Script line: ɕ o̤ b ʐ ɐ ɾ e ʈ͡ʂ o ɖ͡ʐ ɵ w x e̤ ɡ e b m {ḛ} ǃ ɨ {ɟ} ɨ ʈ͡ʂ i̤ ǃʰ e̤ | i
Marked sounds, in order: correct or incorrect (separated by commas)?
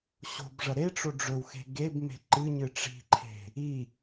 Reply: incorrect, incorrect